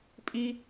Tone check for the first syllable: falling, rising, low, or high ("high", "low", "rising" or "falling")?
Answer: high